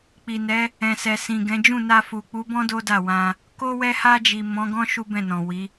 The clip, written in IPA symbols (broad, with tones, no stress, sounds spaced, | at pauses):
k͡p i˨ n ɛ˨˦ | ɛ̃˨ s ɛ˨ s ĩ˨ ɡ ɛ̃˨˦ d͡ʒ ũ˦˨ n a˧ f u˨ k͡p u˨˦ b ɔ̃˦ d o˦ d a˦˨ w ã˧ | k o˧ w ɛ˧ h a˧ d͡ʒ i˨ m ɔ̃˨˦ ɡ ɔ̃˦ ʃ u˦ b ɛ̃˦˨ n ɔ̃˨ w i˨˦